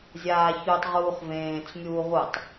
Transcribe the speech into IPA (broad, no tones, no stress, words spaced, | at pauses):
zʲaːçutˤʁuːχ vẽːt͡smʲuː ʁutˤ